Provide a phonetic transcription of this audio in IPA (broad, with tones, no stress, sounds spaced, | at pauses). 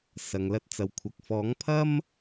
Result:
s ɐ˨ ŋ l ɐ˧ t̚ t͡s ɐ˨ w kʷʰ ɐ˨ k̚ f ɔː˨˥ ŋ pʰ ɐ˥ m